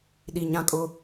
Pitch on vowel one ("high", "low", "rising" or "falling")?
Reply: low